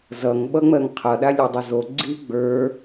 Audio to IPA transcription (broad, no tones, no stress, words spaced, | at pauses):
zʌŋ ɓʌŋ͡mɜŋqʰʌɗa lʲodˤʌzo ɡ͡ǀi ɡ͡bə˞